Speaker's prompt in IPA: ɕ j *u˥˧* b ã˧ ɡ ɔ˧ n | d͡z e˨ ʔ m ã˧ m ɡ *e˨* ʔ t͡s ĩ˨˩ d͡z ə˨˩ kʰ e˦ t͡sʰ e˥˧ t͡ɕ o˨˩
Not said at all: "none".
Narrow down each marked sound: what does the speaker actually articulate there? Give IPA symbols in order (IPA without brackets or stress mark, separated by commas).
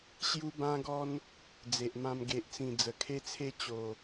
u˧, e˨